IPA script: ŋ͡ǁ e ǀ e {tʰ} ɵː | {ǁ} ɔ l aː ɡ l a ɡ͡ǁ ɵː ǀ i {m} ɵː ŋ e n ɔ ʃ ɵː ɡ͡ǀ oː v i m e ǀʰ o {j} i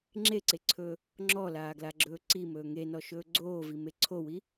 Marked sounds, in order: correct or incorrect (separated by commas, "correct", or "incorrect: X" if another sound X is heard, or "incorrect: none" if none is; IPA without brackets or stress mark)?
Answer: incorrect: ǀʰ, incorrect: ŋ͡ǁ, correct, incorrect: w